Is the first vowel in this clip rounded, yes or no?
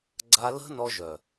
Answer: no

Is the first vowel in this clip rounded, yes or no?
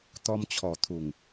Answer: yes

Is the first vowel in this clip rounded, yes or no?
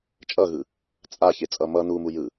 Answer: no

